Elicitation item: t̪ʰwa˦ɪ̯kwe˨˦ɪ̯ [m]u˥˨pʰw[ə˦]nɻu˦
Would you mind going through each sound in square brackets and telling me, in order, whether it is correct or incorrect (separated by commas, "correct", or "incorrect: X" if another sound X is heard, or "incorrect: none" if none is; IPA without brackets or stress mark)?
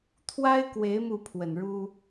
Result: correct, incorrect: ə˨˩